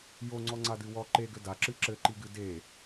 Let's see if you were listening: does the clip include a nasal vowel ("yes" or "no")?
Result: no